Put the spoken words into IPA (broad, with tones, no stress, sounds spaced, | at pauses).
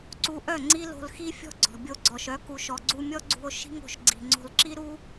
ǀ u˧ ʔ œ˦˨ ŋ͡ǀ i˦ l o̤˧ l x i˦ fʲ ɔ̤˦ ɡ͡ǀ ɔ̤˨ bʲ o˧ ɡ͡ǀ ɔ˨ ʃ œ˨˦ k u˨ ʃ ɔ˨ ɡ͡ǀ u˧ mʲ ɔ˦ ɡ͡ǀ ṳ˧ o̯ ʃ i̤˦ ŋ o̤˨ ʃ ɡ͡ǀ i̤˨ ŋ͡ǀ o̤˧ l ǁ i˦ ɾ u˦